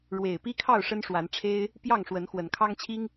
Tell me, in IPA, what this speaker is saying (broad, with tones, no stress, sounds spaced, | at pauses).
ɻ w e˨˩ ɪ̯ p i˦ kʰ ɑ˥˨ ʊ̯ ʂ ə˦ n ʂ w a˨˦ n ʈ͡ʂʰ e˦ ɪ̯ | p j ɑ˥˨ ŋ ʂ w ə˨˦ n x w ə˨˩ n kʰ ɑ˦ ŋ t͡ɕʰ i˦ ŋ